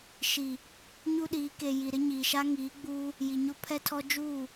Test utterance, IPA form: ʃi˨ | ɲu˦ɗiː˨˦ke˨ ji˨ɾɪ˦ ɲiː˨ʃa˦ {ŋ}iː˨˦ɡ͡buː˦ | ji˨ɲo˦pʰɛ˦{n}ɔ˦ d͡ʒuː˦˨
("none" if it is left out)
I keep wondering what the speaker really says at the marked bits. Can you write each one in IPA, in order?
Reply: ŋ, tʰ

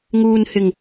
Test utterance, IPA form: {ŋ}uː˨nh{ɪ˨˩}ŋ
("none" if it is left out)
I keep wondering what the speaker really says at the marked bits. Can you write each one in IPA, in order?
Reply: ŋ, ɪ˨˩

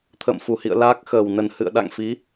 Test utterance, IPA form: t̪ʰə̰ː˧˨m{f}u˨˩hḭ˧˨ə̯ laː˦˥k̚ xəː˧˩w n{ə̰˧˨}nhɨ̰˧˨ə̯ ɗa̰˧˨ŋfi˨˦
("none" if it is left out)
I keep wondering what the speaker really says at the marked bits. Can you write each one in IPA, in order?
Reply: f, ə˧˩

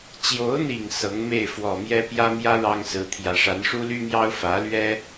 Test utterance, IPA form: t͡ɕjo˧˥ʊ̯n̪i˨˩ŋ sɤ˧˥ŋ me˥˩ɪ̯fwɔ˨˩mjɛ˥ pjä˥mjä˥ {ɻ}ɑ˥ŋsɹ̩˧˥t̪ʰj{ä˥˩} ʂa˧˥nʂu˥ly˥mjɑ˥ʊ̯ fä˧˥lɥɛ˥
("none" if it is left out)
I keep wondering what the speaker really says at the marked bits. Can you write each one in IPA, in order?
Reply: ɻ, ä˧˥

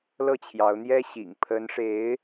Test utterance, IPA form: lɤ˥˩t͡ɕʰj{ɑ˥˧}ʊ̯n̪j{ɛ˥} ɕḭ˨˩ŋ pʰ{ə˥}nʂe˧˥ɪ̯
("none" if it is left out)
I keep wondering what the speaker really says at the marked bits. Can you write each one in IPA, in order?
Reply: ɑ˧˥, ɛ˥, ə˧˥

